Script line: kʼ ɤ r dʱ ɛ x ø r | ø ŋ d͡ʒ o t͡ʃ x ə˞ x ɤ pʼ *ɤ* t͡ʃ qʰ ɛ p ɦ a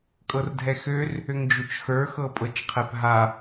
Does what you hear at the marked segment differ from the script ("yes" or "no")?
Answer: no